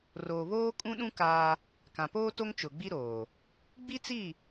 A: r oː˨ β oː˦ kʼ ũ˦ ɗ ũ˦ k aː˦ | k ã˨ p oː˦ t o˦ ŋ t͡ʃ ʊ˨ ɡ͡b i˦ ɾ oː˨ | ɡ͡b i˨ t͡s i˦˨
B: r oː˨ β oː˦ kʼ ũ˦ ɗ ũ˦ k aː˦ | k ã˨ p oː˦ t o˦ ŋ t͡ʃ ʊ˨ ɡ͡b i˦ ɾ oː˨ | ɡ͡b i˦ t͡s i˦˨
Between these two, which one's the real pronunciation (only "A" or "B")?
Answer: B